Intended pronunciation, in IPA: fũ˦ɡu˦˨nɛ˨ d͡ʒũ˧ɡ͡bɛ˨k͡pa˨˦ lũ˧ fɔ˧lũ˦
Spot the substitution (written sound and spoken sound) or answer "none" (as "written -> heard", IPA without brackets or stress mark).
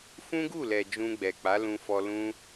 n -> l